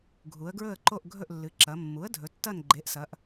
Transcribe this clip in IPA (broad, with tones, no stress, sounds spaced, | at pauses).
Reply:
ɡʱ u˩˧ ə̯ ɡ ɹ ɵ˦˨ ə̯ ǃ o˦˨ ʔ ɡʱ ɵ˦˨ ʔ lː ɨ˩˧ ǁ ɐ˩˧ mː u˩˥ ə̯ dʱ ɵ˩˧ tː ɐ˦˨ n ɡ͡ǃ e˩˥ ʔ s ɐ˩˧ ʔ